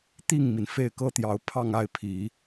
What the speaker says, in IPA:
t̪ i˥˩ ŋ m i˩ n f e˥˩ ɪ̯ k ɤ˥ t̪ j ɑ˧˥ ʊ̯ pʰ ɑ˥˧ ŋ a˥˩ ɪ̯ pʰ i˨˩˦

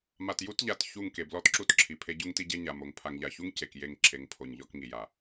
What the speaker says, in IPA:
m a˨ t j u˦ t ʎ a˨ t ç u˦˨ ŋ k e˨ b l ɔ˦ t ǁ u˦ t ǁʰ i˨ pʰ e˦ ɟ u˦ ŋ t i˦ ɟ e˦ ɲ a˨ m o˨ ŋ pʰ a˨ ŋ ʎ a˨ ç u˦ ŋ c e˨ k j e˦˨ ŋ ǁʰ e˨ ŋ pʰ o˨ ɲ ʎ ɔ˦ k ŋ i˨ j a˨

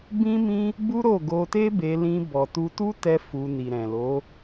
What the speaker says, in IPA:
b ĩ˦ m ĩ˦ | b u˦ ɾ o˦˨ ɡ o˧ t e˦ b e˧ l ĩ˧ b ɔ˨ t u˧ t u˦ t ɛ˦ f u˧ n i˨ ɾ ɛ̃˨ l o˨˦

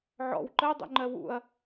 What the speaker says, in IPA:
ʕ ɔ̰ w ǃ ɜ dˤ o̰ ŋ͡ǃ ɜ w ṵ ɐ̯

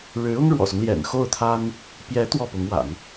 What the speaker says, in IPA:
ɻ ɻ̩˧˥ ʊ˥ ŋ ɻ w ɔ̰˨˩ s ʊ˦ ŋ l j ɛ̰˨˩ n x o˥˩ ʊ̯ t̪ʰ a˥ n | p j ɛ˧˥ t̪ w ɔ˥˩ p ʊ˧˥ ŋ w a̰˨˩˦ n

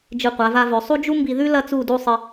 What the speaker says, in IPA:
d͡ʒ ɨ˧˩ qʷ a˩˧ v a˧ v ɵ˩˧ sˤ u˥ d͡ʒ u˥ m b i˧ ð ʉ˥ l ɐ˥ t͡s u˥˧ d u˥˧ sˤ ɨ˧

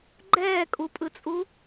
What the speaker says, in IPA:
ɡ͡ǃ ɛː kʼ u pʼ ɯ t͡sʼ u

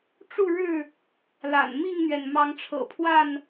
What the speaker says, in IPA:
ʈ͡ʂ u˥˨ ɻ ɻ̩˥˨ | l a̰˨˩ n m i˥˨ ŋ n̪ ɥ ɛ˩ n m ɑ˨˦ ŋ ʈ͡ʂʰ ɤ̰˨˩ pʰ w a˥˨ n

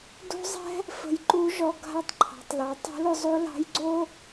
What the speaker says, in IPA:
d o̤˥ zˤ ɛ̤˥ | f ə̤˧ j ǃ u˧˥ ʒ ɔ˧ ɡʱ a˧ tˤ ǃʰ ɑ̤˩˧ tˤ l ɑ˩˧ tˤ o̤˧˥ l ʊ˧ zˤ o˧˥ l ɑ̤˧˥ j ɡ͡ǀ o˥

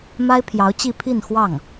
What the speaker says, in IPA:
m a˥ ɪ̯ pʰ j ɑ˧˥ ʊ̯ t͡ɕ i˥˧ pʰ i˥˧ n x w ɑ˥˩ ŋ

